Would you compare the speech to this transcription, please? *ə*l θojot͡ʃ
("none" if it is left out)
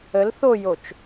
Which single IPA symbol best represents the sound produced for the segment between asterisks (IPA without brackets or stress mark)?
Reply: ə